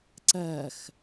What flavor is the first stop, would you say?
click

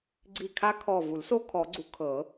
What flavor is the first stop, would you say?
click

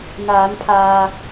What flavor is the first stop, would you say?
aspirated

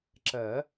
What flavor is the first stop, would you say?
click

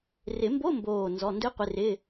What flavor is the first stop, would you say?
plain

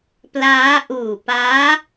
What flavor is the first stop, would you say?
plain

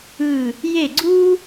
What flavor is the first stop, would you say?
click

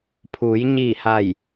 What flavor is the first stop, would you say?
aspirated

